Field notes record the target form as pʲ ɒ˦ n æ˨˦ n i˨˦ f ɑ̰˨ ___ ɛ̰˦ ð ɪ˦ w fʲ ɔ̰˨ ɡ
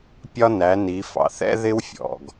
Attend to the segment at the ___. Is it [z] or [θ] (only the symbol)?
θ